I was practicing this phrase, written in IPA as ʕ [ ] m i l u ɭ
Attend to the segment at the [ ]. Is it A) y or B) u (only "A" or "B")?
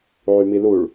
A